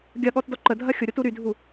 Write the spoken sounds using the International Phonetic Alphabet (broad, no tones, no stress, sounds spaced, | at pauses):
ɡʲ ɐ ɠ ɔ t d ɔ ǃ ə dʱ ɐ xʲ ʊ ɾʲ o t u ɾ y dʱ u